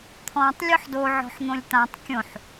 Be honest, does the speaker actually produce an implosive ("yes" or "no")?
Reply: no